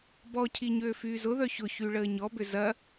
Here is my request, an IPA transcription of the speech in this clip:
bɔcʰi ɲøːfyːzʊðœ çʊçy ɭəːɲɔbʏ zɐ

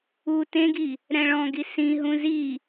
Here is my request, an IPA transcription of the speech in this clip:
u tẽɡi | ɾɛ̃ɭɔ̃ɡi sĩɦũ zi

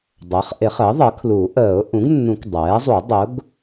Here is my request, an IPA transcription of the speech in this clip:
dˤɜ˩˥χʔɪ˨˩˦χəː˩˥ ðˤɜ˩˥kʰlu˨˩˦ ʔəː˨˩˦ʊ̯ ʔũ˩˥ɡnːũ˨˩˦k dˤɛː˩˥zˤu˨˩˦ dˤʊ˩˥ɡ

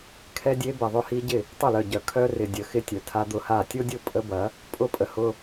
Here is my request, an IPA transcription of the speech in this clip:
kʰɛ˦dʲe˦ bɛ˨ðˤʊ˦˨ hi˦ɟɪ˦˨ | tˤʊ˦˨lœ˨ɟœ˨ kʰœ˦rɪ˨ dʲə˨˦xɪ˦tʲœ˨ tʰa˦d̪ʊ˦ha˦˨ tʲo˦dʲʊ˦˨ pʼə˦bɐ˨˦ | pʼʊ˦pʼə˨hʊ˦

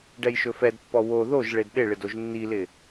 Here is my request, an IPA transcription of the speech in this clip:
ɖɛjʃɵfɛdpːɔ wo ðoʒ ɭedɗɪɭɪd oʒnːilɪ

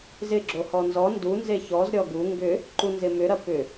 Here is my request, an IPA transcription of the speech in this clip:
zɪɡ͡ǁo hɔnzɔ ndunze çɔzɾʲɔ ɡu ŋɡʏ | ǃunzɪmʏɾɐ pʏ

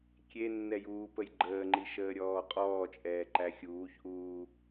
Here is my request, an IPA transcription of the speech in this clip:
kʲenːɛjuːpəj ɡ͡ǃəːŋ͡ǃiʃəːɾʲɔː qʼɔːt͡ʃʼɛːǃæ xʲuːçʔuː

